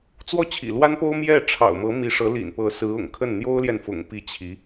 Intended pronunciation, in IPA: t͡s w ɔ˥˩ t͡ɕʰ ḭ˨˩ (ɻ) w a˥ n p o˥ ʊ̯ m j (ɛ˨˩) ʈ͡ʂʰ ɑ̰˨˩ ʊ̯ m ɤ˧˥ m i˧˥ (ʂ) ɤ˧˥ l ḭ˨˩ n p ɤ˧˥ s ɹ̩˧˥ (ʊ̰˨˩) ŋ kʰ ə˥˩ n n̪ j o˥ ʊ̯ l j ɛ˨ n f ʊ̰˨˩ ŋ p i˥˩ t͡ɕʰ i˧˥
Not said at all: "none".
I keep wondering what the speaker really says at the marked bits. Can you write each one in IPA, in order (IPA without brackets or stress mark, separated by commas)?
l, ɛ˥˩, ʂ, ʊ̰˨˩